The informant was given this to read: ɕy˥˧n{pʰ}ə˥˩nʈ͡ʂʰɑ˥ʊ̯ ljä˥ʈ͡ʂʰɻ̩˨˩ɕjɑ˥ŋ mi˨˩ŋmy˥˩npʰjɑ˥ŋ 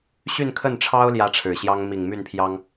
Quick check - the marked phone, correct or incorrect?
incorrect